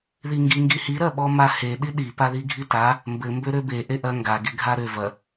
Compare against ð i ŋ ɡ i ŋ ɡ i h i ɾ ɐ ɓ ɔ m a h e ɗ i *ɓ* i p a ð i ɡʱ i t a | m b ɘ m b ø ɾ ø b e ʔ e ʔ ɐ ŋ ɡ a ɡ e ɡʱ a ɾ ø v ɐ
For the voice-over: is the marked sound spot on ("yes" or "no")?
no